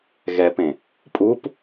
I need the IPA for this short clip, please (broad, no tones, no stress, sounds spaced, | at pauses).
ɣ ɛ p ẽ | pʼ u p